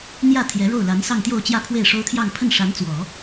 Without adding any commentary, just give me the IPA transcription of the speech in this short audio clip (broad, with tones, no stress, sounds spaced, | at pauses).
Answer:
n̪ j ä˥˩ t̪ʰ j ɛ˧˥ ɻ o˥˩ ʊ̯ l a˧˥ n s ɑ˥˧ ŋ t̪ j o˥˧ ʊ̯ t͡ɕ j ä˥˧ pʰ w e˥˩ ɪ̯ ʂ o˥ ʊ̯ t̪ʰ j ɑ˥˧ ŋ pʰ ə˥˩ n ʂ a˧˥ n t͡s w ɔ˨˩˦